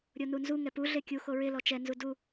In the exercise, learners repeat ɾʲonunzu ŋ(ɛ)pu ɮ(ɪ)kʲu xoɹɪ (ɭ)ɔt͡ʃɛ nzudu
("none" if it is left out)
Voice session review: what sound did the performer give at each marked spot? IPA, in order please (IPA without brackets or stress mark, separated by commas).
ɛ, ɪ, l